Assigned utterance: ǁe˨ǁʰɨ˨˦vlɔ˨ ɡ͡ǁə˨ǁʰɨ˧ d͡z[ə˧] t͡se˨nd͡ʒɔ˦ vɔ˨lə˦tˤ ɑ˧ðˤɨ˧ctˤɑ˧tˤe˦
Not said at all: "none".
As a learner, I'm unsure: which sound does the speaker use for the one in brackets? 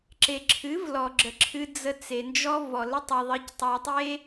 ə˧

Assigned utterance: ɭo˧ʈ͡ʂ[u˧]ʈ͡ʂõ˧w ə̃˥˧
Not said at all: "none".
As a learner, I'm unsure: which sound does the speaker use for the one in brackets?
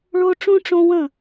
ũ˧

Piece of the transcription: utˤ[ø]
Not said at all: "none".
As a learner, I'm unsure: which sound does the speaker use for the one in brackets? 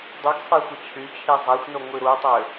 ø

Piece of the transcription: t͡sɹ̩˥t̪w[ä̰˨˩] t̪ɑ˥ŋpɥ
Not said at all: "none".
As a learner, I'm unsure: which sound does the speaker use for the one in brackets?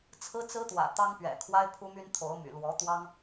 ä̰˨˩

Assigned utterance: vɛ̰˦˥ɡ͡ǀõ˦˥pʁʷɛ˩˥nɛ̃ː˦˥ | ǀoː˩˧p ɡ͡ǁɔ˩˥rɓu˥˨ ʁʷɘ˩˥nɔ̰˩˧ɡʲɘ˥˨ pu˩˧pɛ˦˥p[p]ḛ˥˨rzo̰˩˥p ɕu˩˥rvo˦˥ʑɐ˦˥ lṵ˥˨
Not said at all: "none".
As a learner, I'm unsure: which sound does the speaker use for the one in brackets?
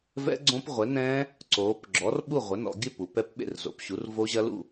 ɓ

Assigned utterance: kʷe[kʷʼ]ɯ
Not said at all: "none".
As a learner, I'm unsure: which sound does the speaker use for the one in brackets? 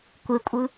kʷʼ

